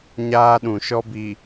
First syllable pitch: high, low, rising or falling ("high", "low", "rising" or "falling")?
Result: high